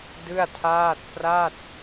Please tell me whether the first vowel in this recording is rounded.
no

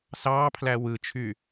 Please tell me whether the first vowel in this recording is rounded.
no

